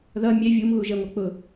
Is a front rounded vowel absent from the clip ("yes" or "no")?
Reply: yes